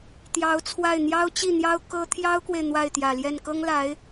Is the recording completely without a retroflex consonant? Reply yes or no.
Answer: yes